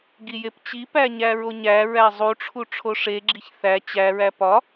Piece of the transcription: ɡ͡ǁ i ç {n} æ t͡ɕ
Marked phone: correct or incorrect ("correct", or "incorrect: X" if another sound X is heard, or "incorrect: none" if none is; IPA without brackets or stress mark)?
incorrect: θ